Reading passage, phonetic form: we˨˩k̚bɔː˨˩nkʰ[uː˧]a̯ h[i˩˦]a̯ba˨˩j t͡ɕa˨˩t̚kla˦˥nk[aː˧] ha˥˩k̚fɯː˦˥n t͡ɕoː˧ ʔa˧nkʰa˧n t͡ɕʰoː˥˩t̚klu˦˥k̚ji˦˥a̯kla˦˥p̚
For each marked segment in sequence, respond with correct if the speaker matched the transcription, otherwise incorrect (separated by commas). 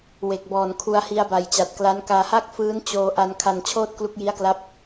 incorrect, incorrect, correct